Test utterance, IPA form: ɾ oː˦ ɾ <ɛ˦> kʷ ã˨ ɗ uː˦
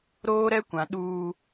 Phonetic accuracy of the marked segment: correct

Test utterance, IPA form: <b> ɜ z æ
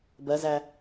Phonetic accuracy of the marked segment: correct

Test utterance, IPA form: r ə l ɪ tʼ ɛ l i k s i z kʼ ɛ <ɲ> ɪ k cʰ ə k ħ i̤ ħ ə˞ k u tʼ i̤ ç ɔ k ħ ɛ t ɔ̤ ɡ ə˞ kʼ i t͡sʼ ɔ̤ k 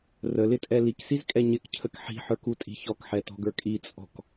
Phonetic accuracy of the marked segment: correct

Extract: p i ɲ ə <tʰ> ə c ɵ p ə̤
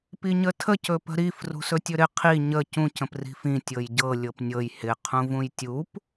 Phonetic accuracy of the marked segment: correct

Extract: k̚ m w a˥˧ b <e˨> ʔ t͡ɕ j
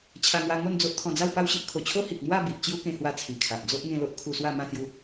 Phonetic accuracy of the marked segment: incorrect: i˨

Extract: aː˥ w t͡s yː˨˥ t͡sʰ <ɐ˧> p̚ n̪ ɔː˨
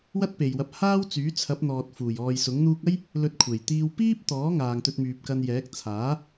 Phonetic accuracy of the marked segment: incorrect: ɐ˨˥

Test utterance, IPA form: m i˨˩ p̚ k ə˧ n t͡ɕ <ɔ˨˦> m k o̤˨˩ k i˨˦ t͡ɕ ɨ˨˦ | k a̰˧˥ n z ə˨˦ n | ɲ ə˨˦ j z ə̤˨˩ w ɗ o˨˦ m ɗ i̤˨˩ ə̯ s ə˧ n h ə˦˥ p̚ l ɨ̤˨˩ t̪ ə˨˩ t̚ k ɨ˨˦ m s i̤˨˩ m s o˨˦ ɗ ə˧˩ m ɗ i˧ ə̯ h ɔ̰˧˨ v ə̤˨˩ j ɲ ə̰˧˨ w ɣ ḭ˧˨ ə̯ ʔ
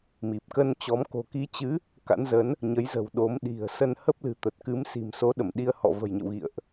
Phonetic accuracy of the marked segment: correct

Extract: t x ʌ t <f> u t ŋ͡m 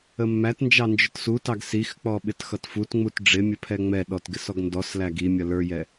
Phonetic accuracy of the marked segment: correct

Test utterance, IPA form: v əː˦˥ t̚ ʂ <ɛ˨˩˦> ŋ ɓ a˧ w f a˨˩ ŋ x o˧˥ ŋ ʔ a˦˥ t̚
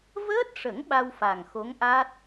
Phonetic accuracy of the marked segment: incorrect: ə˨˩˦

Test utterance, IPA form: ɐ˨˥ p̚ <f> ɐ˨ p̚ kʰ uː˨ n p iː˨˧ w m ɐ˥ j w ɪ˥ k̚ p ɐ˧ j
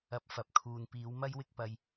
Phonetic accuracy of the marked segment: correct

